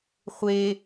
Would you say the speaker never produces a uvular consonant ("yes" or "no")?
no